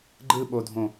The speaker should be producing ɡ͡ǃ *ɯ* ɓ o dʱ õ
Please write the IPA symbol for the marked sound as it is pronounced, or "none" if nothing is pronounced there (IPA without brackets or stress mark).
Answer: ɯ